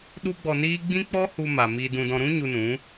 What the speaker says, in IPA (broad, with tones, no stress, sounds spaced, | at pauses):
ɗ u˦ ɡ͡b ɔ˧ n iː˦ ɡ͡b ĩ˦ k͡p ɔ˦ h u˧ m a˨ m iː˧ d ũ˧ d ɔ̃˧ ɾ ũ˦ ɲ u˧ n ũ˨˦